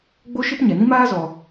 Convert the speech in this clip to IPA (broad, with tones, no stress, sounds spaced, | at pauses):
ɡ͡b o˦ ʃ ɨ˦ p ɲ ɛ˨ n ĩ˦ m aː˦ z ɔ˧